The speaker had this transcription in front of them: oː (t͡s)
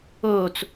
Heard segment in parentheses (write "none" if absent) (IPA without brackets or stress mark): t͡s